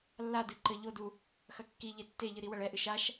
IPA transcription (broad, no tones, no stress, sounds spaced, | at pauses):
lː a d ɨ ǃ ɘ ʎ o d u | x ɐ kː i ʎ e tː e ʎ ɨ ɾ i w ɐ ɭ ɛ ʔ ɨ ʃ a ʃ